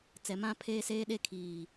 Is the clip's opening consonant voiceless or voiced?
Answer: voiceless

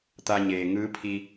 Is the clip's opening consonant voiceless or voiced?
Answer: voiceless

